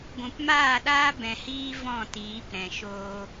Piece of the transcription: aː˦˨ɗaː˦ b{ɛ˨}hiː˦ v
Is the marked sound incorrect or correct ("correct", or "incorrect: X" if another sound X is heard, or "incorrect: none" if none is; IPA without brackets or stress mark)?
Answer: incorrect: ɛ̃˨